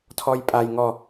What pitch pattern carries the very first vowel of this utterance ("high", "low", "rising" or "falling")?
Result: high